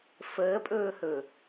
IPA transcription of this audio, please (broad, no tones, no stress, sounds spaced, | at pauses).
f əː pʼ ɵː h ɵː